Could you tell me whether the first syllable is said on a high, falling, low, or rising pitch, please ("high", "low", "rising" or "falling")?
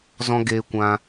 high